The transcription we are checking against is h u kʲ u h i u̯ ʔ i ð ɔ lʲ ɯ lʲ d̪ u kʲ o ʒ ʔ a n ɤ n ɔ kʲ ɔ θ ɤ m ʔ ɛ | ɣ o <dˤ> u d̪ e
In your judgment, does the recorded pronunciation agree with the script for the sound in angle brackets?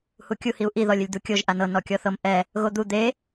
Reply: no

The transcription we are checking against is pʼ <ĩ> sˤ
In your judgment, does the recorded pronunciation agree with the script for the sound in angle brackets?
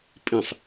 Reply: yes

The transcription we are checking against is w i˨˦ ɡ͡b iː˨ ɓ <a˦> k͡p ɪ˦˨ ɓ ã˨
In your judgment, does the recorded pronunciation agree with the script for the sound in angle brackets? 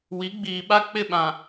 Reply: yes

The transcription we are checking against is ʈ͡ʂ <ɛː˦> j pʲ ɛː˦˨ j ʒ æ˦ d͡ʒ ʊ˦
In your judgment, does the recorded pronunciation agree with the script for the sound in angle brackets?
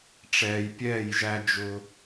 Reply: no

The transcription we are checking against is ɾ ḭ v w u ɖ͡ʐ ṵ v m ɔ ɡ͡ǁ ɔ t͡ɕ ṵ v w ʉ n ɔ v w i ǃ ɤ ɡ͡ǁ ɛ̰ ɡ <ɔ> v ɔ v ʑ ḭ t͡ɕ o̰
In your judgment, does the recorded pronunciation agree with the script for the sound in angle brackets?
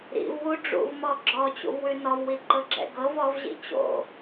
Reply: no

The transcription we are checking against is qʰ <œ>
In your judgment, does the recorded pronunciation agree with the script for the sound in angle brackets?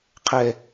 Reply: no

